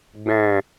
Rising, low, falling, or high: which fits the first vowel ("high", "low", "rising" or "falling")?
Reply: low